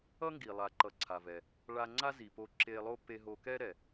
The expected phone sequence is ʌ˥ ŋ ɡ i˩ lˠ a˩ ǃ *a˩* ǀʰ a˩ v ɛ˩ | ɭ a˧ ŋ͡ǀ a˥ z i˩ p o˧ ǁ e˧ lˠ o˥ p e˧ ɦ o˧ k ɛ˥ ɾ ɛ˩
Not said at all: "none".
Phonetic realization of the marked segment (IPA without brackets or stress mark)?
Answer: ʌ˩